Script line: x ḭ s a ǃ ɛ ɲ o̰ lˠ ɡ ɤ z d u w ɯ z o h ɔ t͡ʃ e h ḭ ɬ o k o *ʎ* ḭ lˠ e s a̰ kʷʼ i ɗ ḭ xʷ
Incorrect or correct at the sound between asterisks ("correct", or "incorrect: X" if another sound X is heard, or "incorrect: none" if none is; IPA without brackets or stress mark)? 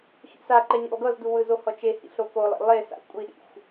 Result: incorrect: lˠ